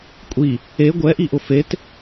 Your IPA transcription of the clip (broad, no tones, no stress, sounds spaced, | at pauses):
kʷʼ i | e ɡʷ ɛ ʔ i ʔ ʊ f e t